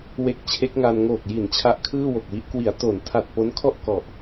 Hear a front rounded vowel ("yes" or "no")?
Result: no